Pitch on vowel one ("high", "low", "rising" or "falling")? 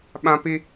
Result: high